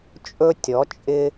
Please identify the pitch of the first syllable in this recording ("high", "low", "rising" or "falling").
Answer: high